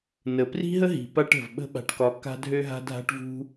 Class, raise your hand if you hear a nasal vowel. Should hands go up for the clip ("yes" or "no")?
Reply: no